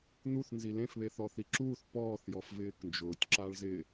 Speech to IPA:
n̪ u θ n z i l ẽ f β e θ ɔ θ i ǁ uː θ p ɔː θ j ɔ f v ɪː k n d͡ʒ ʊː tʲ ǁ a ɭ z ɪ

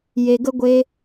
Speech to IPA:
j e˧ ɡ ə˦ ɡʷ e˦

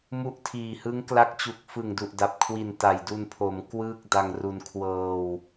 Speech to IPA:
m u˦˥ ʔ tʰ iː˨˩ h ɯ˦˥ ŋ k l a˦˥ k̚ t͡ɕ u˨˩ k̚ f ɯ˨˩ ŋ d u˨˩ ʔ d a˨˩ p̚ kʰ w i˨˩ n t a˨˩ j d u˧ n pʰ o˩˦ m k w ɯː˥˩ k̚ d a˧ ŋ r u˧ n kʰ w ɤː˧ w

